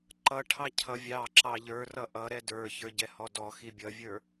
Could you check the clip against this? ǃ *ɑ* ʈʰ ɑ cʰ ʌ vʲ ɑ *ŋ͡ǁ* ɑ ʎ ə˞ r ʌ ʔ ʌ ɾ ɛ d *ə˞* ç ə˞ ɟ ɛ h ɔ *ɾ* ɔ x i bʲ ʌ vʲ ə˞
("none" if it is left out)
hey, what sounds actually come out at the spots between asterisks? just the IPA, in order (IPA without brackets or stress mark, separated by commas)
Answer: ʌ, ǁ, ə˞, d